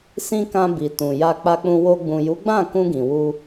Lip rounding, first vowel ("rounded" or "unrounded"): unrounded